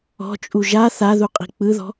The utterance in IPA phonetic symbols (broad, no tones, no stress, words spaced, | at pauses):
ɔ̤t͡ʃʼu ʒa θaðuqʼi̤ k͡pɯðɔ̤